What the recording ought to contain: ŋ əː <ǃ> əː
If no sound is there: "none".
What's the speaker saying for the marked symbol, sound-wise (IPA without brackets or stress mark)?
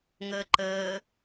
ǃ